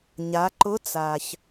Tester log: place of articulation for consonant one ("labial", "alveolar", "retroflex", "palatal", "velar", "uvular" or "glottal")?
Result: palatal